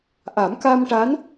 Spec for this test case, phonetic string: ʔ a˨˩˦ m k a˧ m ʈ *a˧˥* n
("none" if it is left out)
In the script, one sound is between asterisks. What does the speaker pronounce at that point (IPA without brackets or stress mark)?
a˧˥